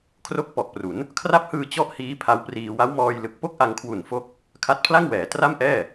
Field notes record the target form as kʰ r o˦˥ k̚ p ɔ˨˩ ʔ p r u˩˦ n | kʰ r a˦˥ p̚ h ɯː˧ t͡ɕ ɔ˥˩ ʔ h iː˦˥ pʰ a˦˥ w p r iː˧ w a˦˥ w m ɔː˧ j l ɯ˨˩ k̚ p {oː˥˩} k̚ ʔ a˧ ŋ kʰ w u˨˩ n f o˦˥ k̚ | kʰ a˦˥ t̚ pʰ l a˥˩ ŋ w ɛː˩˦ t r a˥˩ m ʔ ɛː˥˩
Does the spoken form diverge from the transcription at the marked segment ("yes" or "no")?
yes